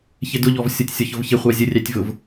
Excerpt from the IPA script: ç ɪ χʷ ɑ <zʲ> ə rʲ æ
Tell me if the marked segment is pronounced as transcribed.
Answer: yes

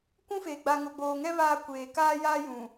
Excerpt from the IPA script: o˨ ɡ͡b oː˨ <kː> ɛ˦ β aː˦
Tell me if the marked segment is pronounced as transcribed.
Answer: no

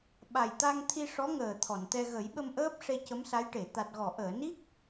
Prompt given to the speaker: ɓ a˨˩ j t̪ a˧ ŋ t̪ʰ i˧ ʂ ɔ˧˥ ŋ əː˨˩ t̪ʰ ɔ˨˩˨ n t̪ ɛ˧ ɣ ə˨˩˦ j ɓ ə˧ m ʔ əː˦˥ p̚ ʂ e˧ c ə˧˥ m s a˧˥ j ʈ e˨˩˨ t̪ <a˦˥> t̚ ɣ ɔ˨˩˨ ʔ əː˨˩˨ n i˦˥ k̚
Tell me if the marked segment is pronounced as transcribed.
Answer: no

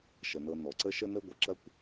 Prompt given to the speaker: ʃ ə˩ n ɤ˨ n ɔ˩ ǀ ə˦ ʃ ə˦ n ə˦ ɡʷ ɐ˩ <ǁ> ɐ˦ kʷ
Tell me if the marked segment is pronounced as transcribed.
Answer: yes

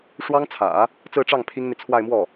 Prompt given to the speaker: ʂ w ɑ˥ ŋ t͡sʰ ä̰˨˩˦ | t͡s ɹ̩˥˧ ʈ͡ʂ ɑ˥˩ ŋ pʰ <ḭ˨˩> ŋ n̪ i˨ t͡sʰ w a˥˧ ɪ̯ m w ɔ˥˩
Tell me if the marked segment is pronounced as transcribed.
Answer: no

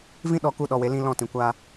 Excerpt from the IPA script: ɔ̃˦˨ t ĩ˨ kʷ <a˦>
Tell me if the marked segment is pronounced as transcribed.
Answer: yes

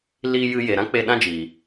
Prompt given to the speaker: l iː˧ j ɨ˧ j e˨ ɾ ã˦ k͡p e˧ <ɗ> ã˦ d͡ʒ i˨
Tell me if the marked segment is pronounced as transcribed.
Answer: yes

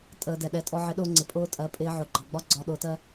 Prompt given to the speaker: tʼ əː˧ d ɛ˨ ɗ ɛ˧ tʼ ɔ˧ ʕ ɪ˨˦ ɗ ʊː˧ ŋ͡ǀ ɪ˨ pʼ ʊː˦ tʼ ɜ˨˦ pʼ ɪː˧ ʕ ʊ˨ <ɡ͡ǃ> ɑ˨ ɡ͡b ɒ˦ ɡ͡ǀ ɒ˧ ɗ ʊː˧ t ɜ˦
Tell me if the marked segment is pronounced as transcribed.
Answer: yes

